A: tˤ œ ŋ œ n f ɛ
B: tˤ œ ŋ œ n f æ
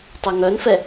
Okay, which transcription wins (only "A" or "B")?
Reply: A